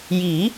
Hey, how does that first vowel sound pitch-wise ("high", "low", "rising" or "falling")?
rising